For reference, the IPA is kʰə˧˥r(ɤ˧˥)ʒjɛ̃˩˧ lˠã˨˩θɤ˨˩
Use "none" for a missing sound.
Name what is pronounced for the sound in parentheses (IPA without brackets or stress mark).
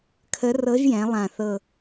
ɤ˧˥